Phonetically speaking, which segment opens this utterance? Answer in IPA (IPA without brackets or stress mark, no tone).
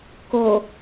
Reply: k